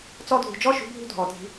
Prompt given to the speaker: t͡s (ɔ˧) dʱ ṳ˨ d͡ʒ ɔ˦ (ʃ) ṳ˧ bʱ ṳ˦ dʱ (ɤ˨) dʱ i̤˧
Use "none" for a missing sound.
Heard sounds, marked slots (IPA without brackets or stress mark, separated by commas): ɔ˧, ʃ, ɔ˨